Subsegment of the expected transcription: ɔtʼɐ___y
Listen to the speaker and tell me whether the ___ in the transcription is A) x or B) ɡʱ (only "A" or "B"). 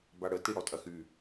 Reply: A